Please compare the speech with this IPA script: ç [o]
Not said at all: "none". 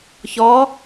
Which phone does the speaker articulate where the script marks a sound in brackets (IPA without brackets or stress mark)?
ɔ